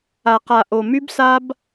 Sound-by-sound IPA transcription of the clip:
a˨ q a˨ ʔ o˨ m y˦ b s a˦ b

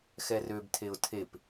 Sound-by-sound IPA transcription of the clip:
x ɛ r ø b tʰ e ʊ̯ tʰ e p

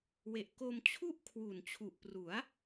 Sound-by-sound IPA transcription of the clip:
w e˨˩ ʔ k o˧ m t͡ɕʰ u˥˩ ʔ kʰ w u˨˩ n t͡ɕʰ u˨˩ ʔ p r u˩˦ a̯

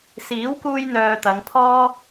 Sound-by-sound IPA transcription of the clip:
s iː˨˥ w k uː˧ j n̪ œː˨ t̪ ɐ˨˧ ŋ pʰ ɔː˥

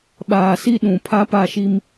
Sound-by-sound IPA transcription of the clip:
ɓ aː˨ s i˦ ɗ ũ˨ pʰ a˦ p a˦˨ ʃ i˦ m

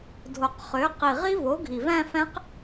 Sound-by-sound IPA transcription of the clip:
dʱ o˨˩ q χ ø˩˥ q i˨˩ ʁ i˦˥ v o˩˥ ɡʱ i˨˩ v æ̃˥˧ f æ̃˦˥ q

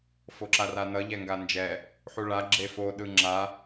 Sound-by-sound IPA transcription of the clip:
f o ǁ a r a n ʌ ʎ ɛ ŋ ɡ a n d͡ʒ ɛ | ħ u ɭ a ɡ͡ǁ e f o ɗ ɯ ŋ͡ǁ a

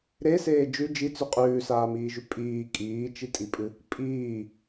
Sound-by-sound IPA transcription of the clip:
ɾ e s eː d͡ʒ ʉ d͡ʒ i t͡s ʉ qʼ ʉː s aː m iː ʒ ʉ pʼ iː kʼ iː t͡ʃ i tʼ i pʼ ɨ | pʼ iː

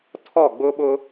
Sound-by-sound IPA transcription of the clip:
tʰ ɔ˦˨ ɡ͡b ʊ˦ ɓ ʊ˦

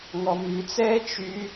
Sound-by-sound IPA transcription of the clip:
ŋ ɔ m ʉ t͡s ɛː t͡ʃ y

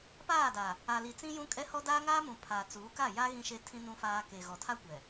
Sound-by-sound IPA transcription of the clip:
p aː˦˨ d a˨ | a˨ l i˨ t͡s ĩ˦ j ũ˦ kʼ ɛ˦ h ɔ˦ d aː˦ ŋ aː˦ m ũ˨ pʰ aː˨ t͡s uː˨˦ k a˦˨ j a˦ ɣ ĩ˦ ʃ e˦ tʰ ĩ˦ n ũ˦ f aː˦ k e˨ ɣ ɔ˨ tʰ a˦ kʷ ɛ˨

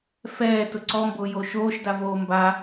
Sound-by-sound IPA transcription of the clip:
f ɛː t ʊ ǀ ɔ m b ʊː j oː ʃ oː ʃ d a v oː m b a

